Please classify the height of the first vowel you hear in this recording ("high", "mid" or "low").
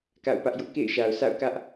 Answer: low